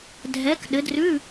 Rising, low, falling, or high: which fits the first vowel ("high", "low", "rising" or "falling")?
rising